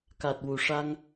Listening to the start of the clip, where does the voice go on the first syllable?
low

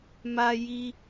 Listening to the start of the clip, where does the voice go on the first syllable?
high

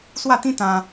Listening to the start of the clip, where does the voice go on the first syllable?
falling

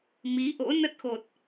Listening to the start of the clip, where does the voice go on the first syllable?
rising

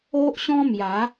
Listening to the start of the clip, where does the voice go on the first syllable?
high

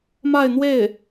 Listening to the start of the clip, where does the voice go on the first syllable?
falling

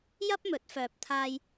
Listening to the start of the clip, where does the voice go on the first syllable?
high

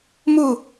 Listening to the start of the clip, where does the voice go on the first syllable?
falling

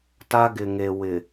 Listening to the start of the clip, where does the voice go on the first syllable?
high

